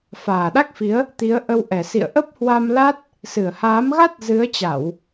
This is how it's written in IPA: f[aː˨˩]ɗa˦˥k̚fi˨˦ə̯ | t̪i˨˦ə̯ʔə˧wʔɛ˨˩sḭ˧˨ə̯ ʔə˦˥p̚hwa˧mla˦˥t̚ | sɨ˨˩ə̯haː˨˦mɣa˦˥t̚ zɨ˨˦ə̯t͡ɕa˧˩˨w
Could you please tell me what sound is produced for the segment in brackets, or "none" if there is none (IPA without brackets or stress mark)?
aː˨˩